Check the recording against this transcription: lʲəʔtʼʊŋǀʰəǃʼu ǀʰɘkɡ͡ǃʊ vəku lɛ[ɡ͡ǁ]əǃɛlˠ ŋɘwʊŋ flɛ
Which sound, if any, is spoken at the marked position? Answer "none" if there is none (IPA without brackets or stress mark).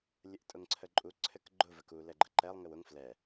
ɡ͡ǃ